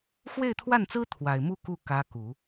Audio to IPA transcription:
x w e˥˧ ɪ̯ t̪ʰ w a˥˩ n t͡s ɹ̩˥ t̪ʰ w a˨˩ ɪ̯ m u˥˧ k u˥˩ k ä˧˥ k u˨˩˦

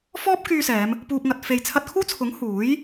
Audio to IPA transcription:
f ɔː˥ p̚ k yː˧ s ɛː˨˧ m | p uː˨ p̚ ŋ ɐ˨ t̚ f e˨ j t͡sʰ ɐ˧ t̚ kʰ uː˥ t͡sʰ ʊ˨˥ ŋ h uː˨˥ j

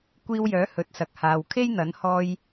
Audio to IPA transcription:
kʷ iː˧ w j œː˨˥ h ɵ˨˥ t̚ s ɐ˨ k̚ h aː˨ w kʰ e˥ j n̪ ɐ˨˥ n h ɔː˧ j

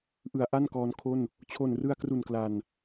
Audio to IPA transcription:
ʔ ɯ˩˦ a̯ ʔ a˥˩ n k ɔː˧ n kʰ o˥˩ n | t͡ɕʰ o˨˩ n r ɯ˧ a̯ k r u˨˩ n k l a˨˩ n

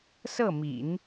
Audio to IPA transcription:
s ɤ˥˩ m ḭ˨˩˦ n

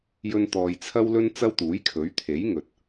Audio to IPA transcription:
j ɵ˥ n t̪ ɔː˧ j t͡sʰ ɐ˥ w l ɵ˥ n t͡s ɐ˥ w t̪ uː˨˥ j kʰ ɵ˨˥ ɥ t̪ʰ e˨˥ j ŋ ɵ˨ t̚

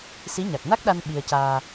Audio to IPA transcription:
s i˧˥ ɲ a˨˩ k̚ n a˦˥ k̚ ɗ a˧ n ɓ i˧ ə̯ c aː˧

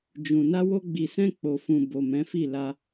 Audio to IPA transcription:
d͡ʒ ũ˨ n a˧ w o˧ ɡ͡b i˨ s ɛ̃˧ k͡p o˨ f ũ˨ b o˨ m ɛ̃˨˦ f i˦˨ l a˧

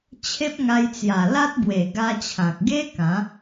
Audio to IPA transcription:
t͡ɕʰ e˦ p̚ ŋ a˧ j t͡s j a˨˩ l a˦ t̚ b w e˨˩ ɡ a˧ t͡ɕʰ ã˨ k̚ ɡ e˦ k ã˨˦

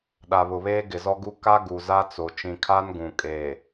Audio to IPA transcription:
ɗ a˨ β ʊ˨ β eː˦ ɡ ɪ˨ z ɔ˦ ɡ u˦ k a˦ ɡ u˨ z a˦ t͡s o˨ t͡ʃ ĩ˨ kʰ a˦ n ɡ ũ˨ kʼ eː˨

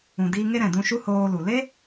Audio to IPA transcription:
ũ˨ d iː˧ ŋ e˦ ɾ ɛ̃˨ d ũ˧ ʃ u˦ h oː˧ l u˨ l e˦

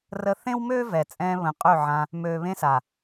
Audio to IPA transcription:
r ə˧ θ ẽ˦ w m øː˦ v ɛ˨ t͡sʼ ɛ̃ː˧ β ə̃˨ qʼ ø˦˨ ʕ ã˧ | m øː˨ β ẽ˧ s a˨

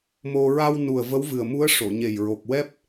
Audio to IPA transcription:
m o˧ ɹ a˧ w n u˨˩ ə̯ v ə˧˥ w v ɨ˨˩ ə̯ m u˧˥ ə̯ ʂ o˨˩˨ ɲ e˨˩ j ɹ o˨˩ k̚ w ɛ˦˥ p̚

